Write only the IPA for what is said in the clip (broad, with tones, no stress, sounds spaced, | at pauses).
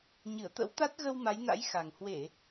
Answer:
ɲ ɨ˧˩ ə̯ t̪ ə̰˧˥ w t̪ a˦˥ t̚ ɣ ə˧ w m a˨˦ j n a̰˧˥ j x a˨˩ ŋ h w e˧˩˨